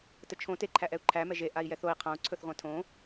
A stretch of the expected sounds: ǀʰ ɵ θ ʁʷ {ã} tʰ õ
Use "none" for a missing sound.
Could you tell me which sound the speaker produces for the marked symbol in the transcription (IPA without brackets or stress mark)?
ã